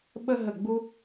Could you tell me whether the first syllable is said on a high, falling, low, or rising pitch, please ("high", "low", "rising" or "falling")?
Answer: high